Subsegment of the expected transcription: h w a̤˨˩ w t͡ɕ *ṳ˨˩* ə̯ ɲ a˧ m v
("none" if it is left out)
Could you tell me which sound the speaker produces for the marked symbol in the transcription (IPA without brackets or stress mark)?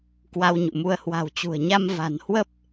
ṳ˨˩